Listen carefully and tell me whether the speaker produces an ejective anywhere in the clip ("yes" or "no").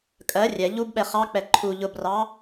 yes